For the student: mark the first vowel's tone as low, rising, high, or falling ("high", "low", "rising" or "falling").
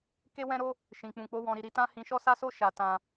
high